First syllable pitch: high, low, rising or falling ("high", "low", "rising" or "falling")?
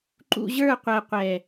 low